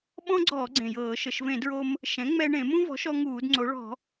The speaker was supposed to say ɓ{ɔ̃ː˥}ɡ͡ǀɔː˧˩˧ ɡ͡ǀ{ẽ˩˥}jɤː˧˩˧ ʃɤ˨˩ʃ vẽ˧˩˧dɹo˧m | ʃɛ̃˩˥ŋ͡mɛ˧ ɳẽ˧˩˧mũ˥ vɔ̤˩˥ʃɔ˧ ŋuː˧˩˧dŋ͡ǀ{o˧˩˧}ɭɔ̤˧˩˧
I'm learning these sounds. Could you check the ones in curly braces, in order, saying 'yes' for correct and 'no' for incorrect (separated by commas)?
no, no, no